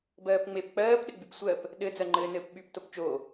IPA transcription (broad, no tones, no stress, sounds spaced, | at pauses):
b ɜː p ŋ͡m e p k͡p ɜː p ɗ ɘ ɡ͡b y p sʷ ɜ p | ɗ ɘ d͡z ɜ ŋ͡ǃ ɘː n ɘː p ɓ y p t o p t͡ʃ o